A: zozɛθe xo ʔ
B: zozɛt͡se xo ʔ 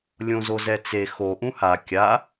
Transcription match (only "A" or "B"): B